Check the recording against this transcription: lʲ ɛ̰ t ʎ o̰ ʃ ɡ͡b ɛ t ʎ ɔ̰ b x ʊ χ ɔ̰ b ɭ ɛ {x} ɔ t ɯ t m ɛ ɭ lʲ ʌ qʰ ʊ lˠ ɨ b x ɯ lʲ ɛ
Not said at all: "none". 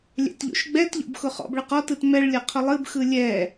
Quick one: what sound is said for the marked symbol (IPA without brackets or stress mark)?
q